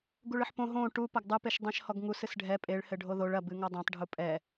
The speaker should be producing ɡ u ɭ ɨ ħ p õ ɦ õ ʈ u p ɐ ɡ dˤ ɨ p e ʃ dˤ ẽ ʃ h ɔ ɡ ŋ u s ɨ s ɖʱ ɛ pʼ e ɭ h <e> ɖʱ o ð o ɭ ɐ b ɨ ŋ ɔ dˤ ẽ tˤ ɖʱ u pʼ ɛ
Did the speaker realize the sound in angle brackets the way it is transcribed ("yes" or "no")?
no